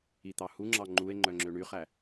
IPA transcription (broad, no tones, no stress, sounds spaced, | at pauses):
i t̪ ɑ h u ŋ͡ǁ ɑ ŋ͡ǃ u e̯ ŋ͡ǃ œ ŋ͡ǁ ø ɳ y χ æ